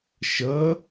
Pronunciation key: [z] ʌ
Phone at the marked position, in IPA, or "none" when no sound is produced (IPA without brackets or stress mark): ʃ